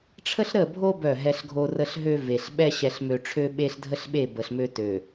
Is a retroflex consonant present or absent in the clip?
present